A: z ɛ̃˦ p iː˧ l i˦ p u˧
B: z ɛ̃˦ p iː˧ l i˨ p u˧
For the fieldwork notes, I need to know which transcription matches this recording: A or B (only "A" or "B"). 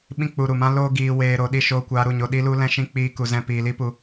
A